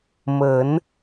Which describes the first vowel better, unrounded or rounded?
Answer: unrounded